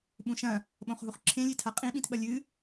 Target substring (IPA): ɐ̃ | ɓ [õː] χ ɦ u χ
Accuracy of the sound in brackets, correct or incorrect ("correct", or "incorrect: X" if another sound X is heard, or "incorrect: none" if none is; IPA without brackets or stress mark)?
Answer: incorrect: õ